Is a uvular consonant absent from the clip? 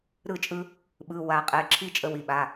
no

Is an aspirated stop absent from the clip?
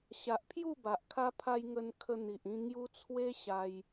no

